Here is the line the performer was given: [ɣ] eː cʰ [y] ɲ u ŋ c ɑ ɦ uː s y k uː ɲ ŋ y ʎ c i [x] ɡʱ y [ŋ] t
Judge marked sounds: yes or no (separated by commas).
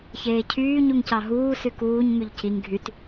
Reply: no, no, no, no